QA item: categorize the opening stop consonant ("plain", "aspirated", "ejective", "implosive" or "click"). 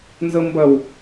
plain